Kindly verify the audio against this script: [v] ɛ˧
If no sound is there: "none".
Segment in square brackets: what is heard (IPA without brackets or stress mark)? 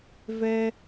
v